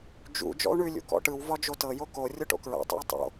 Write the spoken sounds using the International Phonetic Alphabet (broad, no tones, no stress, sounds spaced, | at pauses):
d͡ʒ ṵ d͡ʒ ɔ̰ u̯ ɳ ʉ lʲ ṵ k ɔ̰ ʈ ɯ w v ɒ d͡ʒ o t ɤ j o k o rʲ o ʈ o̰ k ɹ a̰ tˤ ṵ i̯ tˤ o̰